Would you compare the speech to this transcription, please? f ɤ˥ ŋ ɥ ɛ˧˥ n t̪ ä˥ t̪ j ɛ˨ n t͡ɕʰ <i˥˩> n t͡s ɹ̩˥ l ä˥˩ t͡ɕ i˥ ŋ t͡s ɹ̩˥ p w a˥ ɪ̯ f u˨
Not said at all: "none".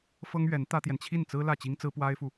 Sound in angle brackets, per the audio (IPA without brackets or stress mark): i˥˩